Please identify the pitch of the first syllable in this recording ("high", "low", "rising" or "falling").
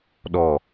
low